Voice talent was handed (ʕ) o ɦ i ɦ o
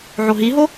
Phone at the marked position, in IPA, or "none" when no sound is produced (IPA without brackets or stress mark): ʕ